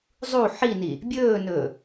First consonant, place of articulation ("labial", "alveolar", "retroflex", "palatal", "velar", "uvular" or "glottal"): alveolar